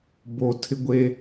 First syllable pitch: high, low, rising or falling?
low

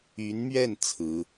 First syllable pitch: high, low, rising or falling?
rising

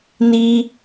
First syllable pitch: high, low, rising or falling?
high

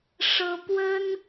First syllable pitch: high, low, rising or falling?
high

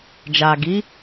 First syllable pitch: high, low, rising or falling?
low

